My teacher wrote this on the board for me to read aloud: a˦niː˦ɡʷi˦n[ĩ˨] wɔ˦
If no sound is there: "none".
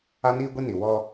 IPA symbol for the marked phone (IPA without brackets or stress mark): i˨